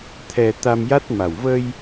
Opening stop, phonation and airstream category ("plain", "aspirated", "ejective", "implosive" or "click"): aspirated